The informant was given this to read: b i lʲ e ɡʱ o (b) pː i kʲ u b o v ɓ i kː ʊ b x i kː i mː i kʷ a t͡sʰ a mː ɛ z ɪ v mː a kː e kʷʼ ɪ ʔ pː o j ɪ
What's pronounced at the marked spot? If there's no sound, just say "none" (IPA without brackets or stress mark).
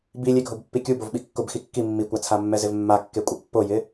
b